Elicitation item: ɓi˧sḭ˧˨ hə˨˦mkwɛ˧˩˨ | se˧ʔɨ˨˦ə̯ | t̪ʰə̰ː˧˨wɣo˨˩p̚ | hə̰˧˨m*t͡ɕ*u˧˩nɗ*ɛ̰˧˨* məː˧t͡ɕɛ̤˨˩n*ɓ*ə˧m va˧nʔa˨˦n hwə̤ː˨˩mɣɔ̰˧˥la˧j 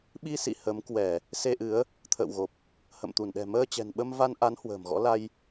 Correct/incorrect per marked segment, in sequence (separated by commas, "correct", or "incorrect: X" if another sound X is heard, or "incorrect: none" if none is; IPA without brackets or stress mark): incorrect: t̪, incorrect: ɛ̤˨˩, correct